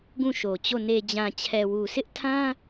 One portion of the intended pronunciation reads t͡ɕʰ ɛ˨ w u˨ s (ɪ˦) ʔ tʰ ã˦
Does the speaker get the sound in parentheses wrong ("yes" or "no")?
no